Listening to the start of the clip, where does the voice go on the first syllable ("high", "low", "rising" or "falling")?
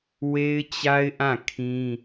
high